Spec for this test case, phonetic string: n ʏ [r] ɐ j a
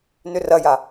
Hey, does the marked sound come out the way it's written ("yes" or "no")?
yes